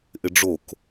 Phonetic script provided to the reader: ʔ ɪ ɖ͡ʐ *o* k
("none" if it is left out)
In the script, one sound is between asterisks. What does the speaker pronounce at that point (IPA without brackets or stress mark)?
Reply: o